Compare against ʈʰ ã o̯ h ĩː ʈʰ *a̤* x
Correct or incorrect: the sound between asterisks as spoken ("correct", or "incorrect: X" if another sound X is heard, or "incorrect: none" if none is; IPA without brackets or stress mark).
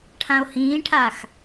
incorrect: a